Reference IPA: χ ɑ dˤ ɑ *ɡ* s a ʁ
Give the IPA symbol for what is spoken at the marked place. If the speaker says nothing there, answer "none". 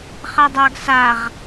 ɡ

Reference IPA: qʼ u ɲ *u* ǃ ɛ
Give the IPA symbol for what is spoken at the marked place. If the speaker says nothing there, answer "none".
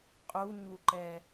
u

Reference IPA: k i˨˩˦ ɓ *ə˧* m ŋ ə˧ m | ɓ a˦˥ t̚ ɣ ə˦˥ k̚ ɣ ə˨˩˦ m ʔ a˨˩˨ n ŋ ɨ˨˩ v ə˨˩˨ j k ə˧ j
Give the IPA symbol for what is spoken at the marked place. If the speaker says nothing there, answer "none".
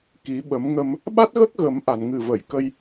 ə˨˩˦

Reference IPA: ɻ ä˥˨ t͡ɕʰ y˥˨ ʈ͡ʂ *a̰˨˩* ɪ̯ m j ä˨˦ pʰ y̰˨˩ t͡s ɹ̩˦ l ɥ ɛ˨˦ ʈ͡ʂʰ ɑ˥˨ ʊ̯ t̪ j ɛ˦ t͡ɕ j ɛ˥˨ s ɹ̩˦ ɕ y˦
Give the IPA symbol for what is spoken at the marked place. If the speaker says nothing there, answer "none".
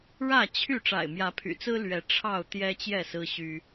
a̰˨˩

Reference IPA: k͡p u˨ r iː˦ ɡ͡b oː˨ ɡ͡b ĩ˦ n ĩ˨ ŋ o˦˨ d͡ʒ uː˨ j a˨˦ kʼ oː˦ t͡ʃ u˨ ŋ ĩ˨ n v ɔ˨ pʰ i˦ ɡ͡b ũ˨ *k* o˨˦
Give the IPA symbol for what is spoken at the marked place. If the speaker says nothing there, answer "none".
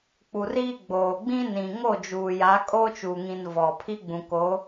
k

